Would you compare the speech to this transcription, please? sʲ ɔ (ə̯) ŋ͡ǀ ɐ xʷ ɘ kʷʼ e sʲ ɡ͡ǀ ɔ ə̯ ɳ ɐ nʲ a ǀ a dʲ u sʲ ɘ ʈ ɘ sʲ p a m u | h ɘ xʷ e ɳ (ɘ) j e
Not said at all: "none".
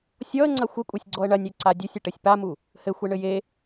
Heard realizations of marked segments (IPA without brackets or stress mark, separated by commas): ə̯, ɘ